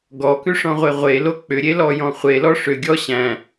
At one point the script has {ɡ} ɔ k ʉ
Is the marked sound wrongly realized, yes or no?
no